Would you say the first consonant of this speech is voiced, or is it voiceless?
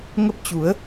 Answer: voiced